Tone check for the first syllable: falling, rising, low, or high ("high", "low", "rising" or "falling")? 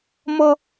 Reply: high